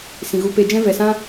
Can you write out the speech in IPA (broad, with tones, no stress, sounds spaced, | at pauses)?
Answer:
s ĩ˨ ɣ u˧ p e˧ d͡ʒ ɛ̃˦ v ɛ˨ s ã˦